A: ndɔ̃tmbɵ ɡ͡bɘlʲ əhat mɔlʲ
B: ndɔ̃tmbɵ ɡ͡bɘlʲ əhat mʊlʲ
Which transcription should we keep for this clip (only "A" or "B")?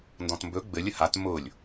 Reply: B